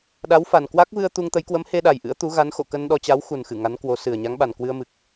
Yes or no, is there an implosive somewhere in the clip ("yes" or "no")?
yes